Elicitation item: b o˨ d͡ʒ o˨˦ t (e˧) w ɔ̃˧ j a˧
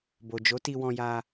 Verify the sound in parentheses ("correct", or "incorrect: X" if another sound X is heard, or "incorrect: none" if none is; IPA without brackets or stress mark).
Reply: incorrect: i˧